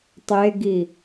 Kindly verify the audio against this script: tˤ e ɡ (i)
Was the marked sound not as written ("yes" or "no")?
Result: no